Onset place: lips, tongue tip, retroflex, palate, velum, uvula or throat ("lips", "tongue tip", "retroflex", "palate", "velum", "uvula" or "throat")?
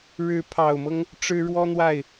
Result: retroflex